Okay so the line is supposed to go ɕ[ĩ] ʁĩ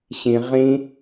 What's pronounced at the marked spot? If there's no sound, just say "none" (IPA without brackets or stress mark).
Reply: ĩ